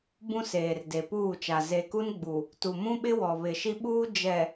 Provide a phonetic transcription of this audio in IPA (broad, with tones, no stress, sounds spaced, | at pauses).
b ũ˦ s eː˨ r d e˨ p uː˦˨ t͡ʃ a˨ z e˨ k u˦ n ɡ͡b u˨ | t u˨ m ũ˦ ɓ ɪ˦ w ɔ˨ β ɪ˨ ʃ i˦ ɓ uː˦ d͡ʒ ɛ˨